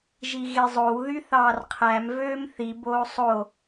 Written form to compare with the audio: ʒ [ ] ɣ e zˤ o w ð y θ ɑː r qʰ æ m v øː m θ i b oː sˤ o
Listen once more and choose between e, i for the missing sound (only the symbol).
i